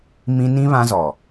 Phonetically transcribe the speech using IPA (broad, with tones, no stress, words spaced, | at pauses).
mĩ˦ nĩ˦ βã˦zɔ˨